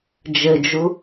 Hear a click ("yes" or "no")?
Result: no